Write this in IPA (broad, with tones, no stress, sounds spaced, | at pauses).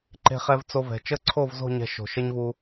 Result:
ǃ e̤˧ χ ɛ˧ v t͡s o˧ v ɛ̤˨ t͡ʃ ə˦˨ ǀʰ o˦˨ v z o̤˦˨ ɲ ɛ̤˧ ʃ o̤˨ ʃ ə˦ ɲ v u˧